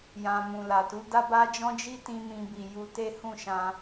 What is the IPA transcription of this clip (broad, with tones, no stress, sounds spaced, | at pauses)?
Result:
j ã˧ m ũ˨ l a˨ t u˨˦ d a˦ b a˦ d͡ʒ ɔ̃˦ d͡ʒ i˦ t ĩ˧ m ĩ˧ b i˨ j u˧ t e˦ h ũ˦˨ ʃ ã˧